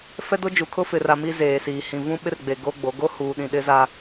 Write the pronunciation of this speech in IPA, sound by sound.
f ɛ˦ d o˦ d͡ʒ u˨ kʰ ʊ˦ f ɪ˨ r a˨ m i˦ z eː˨ s iː˨ h ĩ˨ v ũ˦ ɓ ɪ˦ r ɡ͡b e˨ ɡ o˦ ɡ͡b o˨˦ ɡ o˦ h uː˨ ɗ ĩ˨ ɗ ɪ˦ z a˦

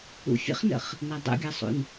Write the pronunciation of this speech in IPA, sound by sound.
ṵ fʲ ə̰ χ n ə̰ χ | n a dˤ ṵ ɡʲ a sˤ ṵ n

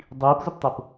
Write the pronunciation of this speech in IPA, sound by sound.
dˤ i p z ʊ p tˤ ʊ p

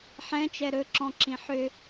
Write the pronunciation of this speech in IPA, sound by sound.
ħ ɛ̃ t͡ʃ ɛ ɾ ɵ ǁ ɔ̃ ǁ ĩ ħ ʏ

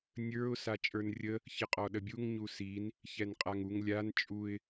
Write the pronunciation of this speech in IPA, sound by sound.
nʲ ə˞ ʊ̯ s a t͡ʃʼ ə˞ n rʲ ə | ç ə qʼ ɔ ɗ ə bʲ u ŋ ɲ u s i n | ç ɛ n qʼ a ŋ u ŋ lʲ a n t͡ʃʼ u ɪ̯

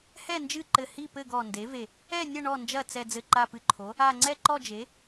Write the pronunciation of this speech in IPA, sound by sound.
h ɛ˥˨ n d͡ʒ ɨ˥˨ ǃ ɘ˧˩ h i˥˨ p ɘ˥˨ ɡ ɔ˧˩ n d e˩˥ v e˧˩ | ɛ˥˨ nʲ ɐ˥˨ ɳ ɔ˧˩ n d͡ʒ ɐ˧˩ t͡s ɛ˧˩ d͡z ɘ˧˩ ǃ a˧˩ p ɨ˧˩ ǃʰ o˩˥ | a˧˩ ŋ͡ǀ ɛ˥˨ ǃ ɔ˥˨ d͡ʒ e˩˥

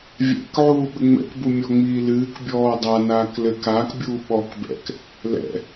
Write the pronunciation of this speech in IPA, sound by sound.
vʲ ɛ̰ k ʕ uː ɓ ɘ ŋ͡m ɛ̰ k b u mʲ ɔ ŋ͡m iː l ɨː k bʲ ɔː dˤ a n aː k l ɘ k aː k bʲ uː ɓ ɔ k b ɛ̰ k | l ɛ̰

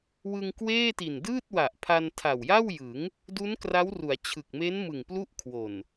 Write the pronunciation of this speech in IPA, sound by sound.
w ɯ˧ ŋ k w eː˥˩ t i˨˩ n d ɯː˥˩ t̚ w a˨˩ ʔ pʰ a˧ n tʰ a˨˩ w j a˥˩ w j ɯ˩˦ ŋ | d u˦˥ n k r a˦˥ w r u˩˦ a̯ t͡ɕʰ ɯ˨˩ k̚ m e˦˥ n m ɯ˨˩ ŋ p l u˥˩ ʔ kʰ w o˨˩ n

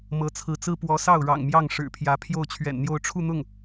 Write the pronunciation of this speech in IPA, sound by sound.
m ɤ˧˥ t͡sʰ ɹ̩˧˥ t͡s ɹ̩˥ p w ɔ˧˥ s ɑ˥˩ ʊ̯ ɻ ɑ̰˨˩ ŋ m j ɑ˥˩ ŋ ʂ ɻ̩˨˩ pʰ j ä˧˥ pʰ j o˥˩ ʊ̯ t͡ɕʰ ɥ ɛ̰˨˩ n n̪ j o˥˧ ʊ̯ ʈ͡ʂʰ u˥˧ n̪ ʊ˥˩ ŋ

